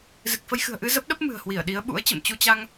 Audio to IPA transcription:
z ɨ˨˩ k̚ f ə˧ j x ɨ̤˨˩ ə̯ ʔ ɨ˧ z ə˦˥ p̚ ɗ ə˦˥ p̚ m ɨ̤˨˩ ə̯ h w i˧˩ ə̯ ɗ i˨˦ ə̯ ɓ ṵ˧˥ ə̯ t͡ɕ ə̰˧˨ m t͡ɕ u˧ t͡ɕ a˧ ŋ

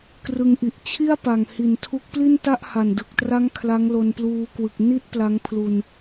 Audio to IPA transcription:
k r ɯ˧ ŋ ʔ i˨˩ ʔ t͡ɕʰ i˥˩ a̯ p a˨˩ ŋ h i˨˩ n tʰ u˦˥ k̚ p l i˥˩ n t a˥˩ ʔ h a˨˩ n d ɯ˨˩ k̚ t r a˦˥ ŋ kʰ l a˦˥ ŋ l o˧ n p l uː˧ k w ɯ˨˩ k̚ n i˥˩ t̚ p l a˦˥ ŋ pʰ l u˧ n

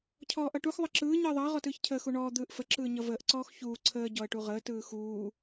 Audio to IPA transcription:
cʰ ɔː ʔ ʌ ʈ u x ðˤ ʌ ǁ ɯː ɲ ɯ ə̯ ðˤ ʌː ʁ ɔ t ɯː ç cʰ əː x u ɳ ɔː d̪ ɯː ʔ f ə ǁ ɯː ɲ ʌ v əː ʔ ǀ ɔː x ç uː ǀʰ əː ɟ ɔ ə̯ ʈ u ʁ əː t ɯː x uː

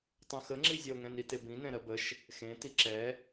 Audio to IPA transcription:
tˤ ə̃ x ə ŋ͡ǁ i zʲ ɛ o̯ ŋ ɛ̃ n i t e b ĩ n ɛ̃ ɾ ɜ b ə ʃ | x ẽ t i ǁ ɛ

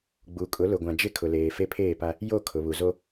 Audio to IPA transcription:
ɡ͡b u˨ kʼ ʊ˨˦ l ʊ˨ ɡʷ ã˨ d͡ʒ ɪ˦ kʰ ʊ˨ l eː˨ f e˦ pʰ eː˦˨ p a˦ | j o˦˨ kʰ ʊ˨ β u˨ z o˦

